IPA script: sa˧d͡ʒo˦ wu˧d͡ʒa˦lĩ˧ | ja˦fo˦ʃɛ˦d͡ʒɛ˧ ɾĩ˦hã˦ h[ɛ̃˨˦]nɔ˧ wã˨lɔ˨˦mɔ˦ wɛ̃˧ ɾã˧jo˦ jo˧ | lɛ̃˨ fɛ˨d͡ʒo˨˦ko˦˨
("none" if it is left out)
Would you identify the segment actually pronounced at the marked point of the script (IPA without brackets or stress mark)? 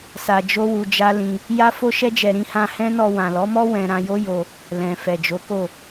ɛ̃˦